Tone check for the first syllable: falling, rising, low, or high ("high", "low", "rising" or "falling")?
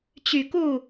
low